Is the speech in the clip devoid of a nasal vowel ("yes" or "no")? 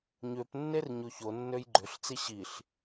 yes